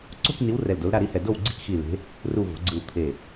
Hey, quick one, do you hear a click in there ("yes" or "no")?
yes